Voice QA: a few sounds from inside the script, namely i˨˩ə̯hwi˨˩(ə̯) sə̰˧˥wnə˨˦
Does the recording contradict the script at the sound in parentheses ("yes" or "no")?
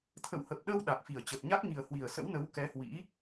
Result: no